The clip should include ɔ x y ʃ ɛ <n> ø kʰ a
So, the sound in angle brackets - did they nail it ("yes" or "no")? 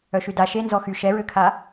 no